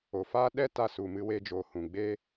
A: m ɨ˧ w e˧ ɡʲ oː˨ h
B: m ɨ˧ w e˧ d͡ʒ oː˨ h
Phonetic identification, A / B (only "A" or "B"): B